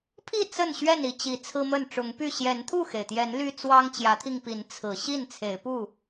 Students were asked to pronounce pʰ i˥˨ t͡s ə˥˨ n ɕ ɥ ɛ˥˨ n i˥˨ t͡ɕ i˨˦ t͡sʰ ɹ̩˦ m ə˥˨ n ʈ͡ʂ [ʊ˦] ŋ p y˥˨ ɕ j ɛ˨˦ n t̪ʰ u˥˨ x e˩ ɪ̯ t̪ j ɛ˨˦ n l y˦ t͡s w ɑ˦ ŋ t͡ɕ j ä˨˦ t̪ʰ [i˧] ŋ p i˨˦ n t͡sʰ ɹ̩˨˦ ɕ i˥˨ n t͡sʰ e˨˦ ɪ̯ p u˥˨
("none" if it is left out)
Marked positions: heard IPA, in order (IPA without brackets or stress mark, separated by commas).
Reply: ʊ˨˦, i˧